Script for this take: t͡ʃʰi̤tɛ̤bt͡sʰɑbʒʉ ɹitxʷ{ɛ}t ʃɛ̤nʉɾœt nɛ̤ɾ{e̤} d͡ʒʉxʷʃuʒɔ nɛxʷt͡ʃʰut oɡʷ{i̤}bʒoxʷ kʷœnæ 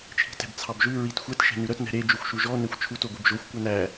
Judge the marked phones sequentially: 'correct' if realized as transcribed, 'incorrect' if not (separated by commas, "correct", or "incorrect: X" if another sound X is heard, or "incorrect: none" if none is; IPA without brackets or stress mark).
correct, incorrect: e, incorrect: i